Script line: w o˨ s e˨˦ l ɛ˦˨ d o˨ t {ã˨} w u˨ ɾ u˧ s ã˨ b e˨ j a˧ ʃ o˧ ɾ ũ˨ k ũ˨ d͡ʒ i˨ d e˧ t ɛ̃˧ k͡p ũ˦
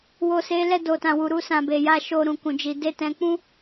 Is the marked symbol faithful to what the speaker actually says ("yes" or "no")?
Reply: yes